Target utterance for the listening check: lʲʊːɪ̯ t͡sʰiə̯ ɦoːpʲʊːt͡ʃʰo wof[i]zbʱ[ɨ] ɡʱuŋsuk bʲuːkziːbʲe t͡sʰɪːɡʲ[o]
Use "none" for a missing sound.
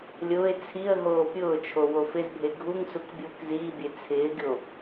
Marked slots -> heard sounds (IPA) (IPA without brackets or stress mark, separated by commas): ɪ, e, o